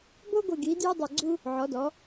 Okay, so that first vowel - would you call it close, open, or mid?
mid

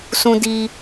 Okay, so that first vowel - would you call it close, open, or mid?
close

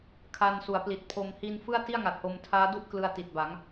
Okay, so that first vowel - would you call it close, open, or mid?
open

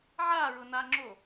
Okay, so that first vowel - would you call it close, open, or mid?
open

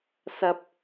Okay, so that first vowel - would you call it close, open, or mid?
open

